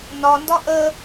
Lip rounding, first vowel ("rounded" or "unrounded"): rounded